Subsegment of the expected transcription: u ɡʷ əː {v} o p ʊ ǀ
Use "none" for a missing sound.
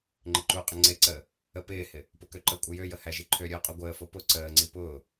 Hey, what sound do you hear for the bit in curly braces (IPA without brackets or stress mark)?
f